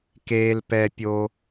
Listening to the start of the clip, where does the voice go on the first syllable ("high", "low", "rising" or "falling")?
low